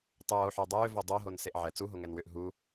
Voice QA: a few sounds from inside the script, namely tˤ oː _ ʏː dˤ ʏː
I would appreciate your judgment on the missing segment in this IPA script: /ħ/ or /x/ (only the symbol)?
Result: ħ